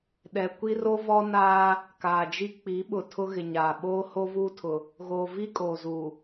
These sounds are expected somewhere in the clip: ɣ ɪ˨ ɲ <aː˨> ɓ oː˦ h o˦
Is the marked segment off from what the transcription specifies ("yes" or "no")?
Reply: no